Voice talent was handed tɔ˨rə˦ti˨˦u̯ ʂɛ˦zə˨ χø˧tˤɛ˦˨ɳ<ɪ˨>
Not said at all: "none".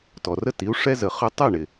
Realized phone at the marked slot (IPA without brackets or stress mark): ɪ˨